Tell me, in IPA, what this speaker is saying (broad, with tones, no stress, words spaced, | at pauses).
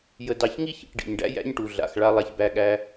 jə˧dɑ˧ç ŋi˥çḭ˩ʈ ɖḭ˩ɲɖæ̰˥ jæ̰˥ɲʈu˩ɮa̰˩xɭa˧ lˠa˧çbæ˧ɠæ˧